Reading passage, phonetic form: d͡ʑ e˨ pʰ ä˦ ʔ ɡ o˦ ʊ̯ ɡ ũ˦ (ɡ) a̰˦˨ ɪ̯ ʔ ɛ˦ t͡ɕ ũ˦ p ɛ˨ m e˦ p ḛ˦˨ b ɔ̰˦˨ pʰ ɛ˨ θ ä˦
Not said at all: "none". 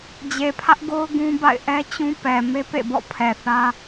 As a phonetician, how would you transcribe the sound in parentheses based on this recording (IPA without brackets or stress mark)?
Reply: b